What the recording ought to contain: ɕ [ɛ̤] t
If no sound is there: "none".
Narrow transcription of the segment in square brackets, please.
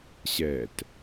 ɛ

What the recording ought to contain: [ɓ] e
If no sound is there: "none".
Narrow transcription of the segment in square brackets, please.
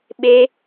ɓ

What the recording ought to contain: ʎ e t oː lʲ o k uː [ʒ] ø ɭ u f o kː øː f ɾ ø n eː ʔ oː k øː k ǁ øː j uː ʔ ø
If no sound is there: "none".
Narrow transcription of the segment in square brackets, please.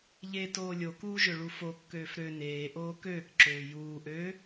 ʒ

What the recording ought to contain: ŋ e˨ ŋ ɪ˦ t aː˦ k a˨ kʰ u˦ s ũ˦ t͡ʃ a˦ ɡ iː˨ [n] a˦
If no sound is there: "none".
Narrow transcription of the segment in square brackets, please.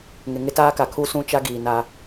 n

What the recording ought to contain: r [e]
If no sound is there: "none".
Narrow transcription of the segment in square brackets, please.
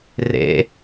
ḛ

